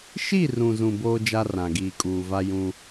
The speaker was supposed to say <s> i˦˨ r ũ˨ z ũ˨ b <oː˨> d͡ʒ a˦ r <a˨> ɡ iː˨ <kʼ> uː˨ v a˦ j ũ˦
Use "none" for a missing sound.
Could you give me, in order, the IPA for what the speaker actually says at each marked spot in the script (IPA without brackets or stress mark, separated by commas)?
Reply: ʃ, oː˦, ã˨, kʼ